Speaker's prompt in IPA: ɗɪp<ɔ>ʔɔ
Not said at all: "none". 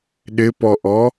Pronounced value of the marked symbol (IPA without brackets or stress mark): ɔ